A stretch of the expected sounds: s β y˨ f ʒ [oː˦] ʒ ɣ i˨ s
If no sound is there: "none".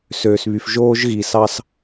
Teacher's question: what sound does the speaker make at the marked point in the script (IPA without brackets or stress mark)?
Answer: oː˦